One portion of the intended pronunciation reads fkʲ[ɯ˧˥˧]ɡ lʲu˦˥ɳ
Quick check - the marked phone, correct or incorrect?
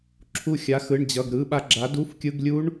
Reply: correct